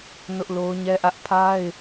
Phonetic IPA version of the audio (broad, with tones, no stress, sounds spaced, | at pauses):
n ʊ˦ ʔ l o˦ ʊ̯ ɲ ɛ˦ ʔ ä˦ ʔ pʰ a˦ ɪ̯